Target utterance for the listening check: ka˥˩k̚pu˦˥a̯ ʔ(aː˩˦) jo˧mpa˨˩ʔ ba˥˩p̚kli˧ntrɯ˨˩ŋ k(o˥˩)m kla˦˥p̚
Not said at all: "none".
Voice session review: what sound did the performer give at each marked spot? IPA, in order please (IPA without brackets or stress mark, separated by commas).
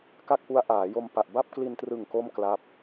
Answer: aː˩˦, o˥˩